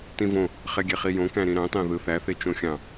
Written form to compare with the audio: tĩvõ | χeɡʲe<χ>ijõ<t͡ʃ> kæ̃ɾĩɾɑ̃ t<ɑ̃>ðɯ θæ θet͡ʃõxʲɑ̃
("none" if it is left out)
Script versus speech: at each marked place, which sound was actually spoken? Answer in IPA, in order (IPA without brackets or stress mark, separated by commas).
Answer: χ, none, ɑ̃